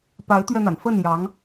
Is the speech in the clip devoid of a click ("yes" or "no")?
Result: yes